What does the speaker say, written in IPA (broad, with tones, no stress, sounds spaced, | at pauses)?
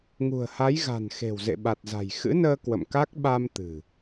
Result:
ŋ ṳ˨˩ ə̯ h a˨˦ j ɣ a̤˨˩ n x e̤˨˩ w z ḛ˧˨ ɓ a˨˩ t̚ z a̤˨˩ j x ɨ̰˧˥ n əː˧ k w ə̰˧˨ m k a˦˥ k̚ ɓ a˧ m t̪ ɨ̤˨˩